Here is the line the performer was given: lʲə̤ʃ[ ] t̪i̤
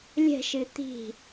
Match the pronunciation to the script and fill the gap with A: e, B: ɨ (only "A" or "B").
B